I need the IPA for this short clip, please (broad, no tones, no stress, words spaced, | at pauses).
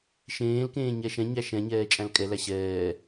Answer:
ʃẽːlkẽː ɲɛʃɛ̃ɲæ ʃɛ̃ɲɛː t͡ʃʼæ̃lkʼɛlæ ɕɛː